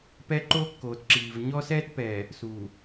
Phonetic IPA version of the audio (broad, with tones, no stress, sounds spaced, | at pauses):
p ɛ˦ ǃ oː˦ kː oː˨ t ǁ iː˨ v ɲ ɔ˦ s ɛː˦ t p ɛː˨ | s uː˨